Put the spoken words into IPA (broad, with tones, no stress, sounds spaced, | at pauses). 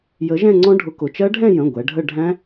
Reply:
j ə˨˥ ʒ ɛ̃˥˧ ŋ͡ǀ ɔ̃˦˥ ɖʱ ʊ˨˥ k ʊ˩˧˩ t͡ʃ ɜ˦˥ ɖʱ ɛ̃˥˧ j ə̃˩˧˩ ɡʷ ɛ˩˧ ɖʱ ə˥˧ ɖʱ æ̃˦˥